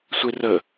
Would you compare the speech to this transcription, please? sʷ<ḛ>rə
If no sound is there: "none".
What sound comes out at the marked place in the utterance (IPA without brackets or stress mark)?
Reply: e